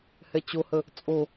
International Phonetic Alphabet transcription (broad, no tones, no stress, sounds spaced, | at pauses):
h ɛ t͡ɕ o h ə | t͡sʼ o